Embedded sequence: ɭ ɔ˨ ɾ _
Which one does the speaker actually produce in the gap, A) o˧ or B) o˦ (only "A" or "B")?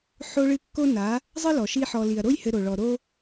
B